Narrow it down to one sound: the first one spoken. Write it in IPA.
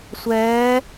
sʷ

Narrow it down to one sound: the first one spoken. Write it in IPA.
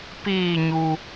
p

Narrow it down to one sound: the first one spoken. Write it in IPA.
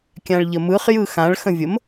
kʲ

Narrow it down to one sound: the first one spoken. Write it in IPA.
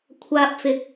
kʷʰ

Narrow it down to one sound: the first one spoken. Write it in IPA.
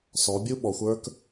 s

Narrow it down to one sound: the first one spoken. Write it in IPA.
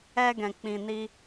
ɛ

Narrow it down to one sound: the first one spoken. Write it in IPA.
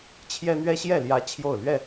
t͡ɕʰ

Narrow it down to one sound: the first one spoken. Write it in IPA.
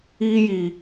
iː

